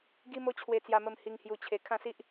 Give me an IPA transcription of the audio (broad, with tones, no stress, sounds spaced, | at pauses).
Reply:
ɡ i˦ m o˦ t͡ɕʰ w e˧ t͡s j a˧ m ə˧ m h i˧ ŋ h j u˧ t͡ɕʰ e˧ kʰ ã˥˧ s i˦ ʔ